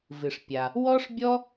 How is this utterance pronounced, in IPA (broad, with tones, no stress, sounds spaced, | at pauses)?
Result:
v ɨ˩ ʂ pʲ a˩ | w ɔ˥ ʂ bʲ ɔ˥